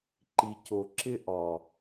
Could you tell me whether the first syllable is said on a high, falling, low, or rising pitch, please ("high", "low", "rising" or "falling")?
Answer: low